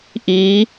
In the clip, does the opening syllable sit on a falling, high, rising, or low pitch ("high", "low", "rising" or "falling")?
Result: rising